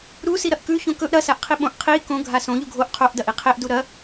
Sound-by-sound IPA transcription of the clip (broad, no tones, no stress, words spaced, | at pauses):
ɾu siɾɐʔkʉ çõkɵʔ ɾɐsaʔqʰi ɓõʔ qʰi kõ ɡʱasõ ʎuɡʱoʔ qʰoʔdɐʔi qʰeʔdu ɾɐ